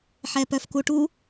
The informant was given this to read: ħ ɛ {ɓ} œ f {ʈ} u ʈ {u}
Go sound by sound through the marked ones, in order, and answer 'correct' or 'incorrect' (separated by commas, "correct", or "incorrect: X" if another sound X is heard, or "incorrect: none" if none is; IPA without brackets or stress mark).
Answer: incorrect: p, incorrect: k, correct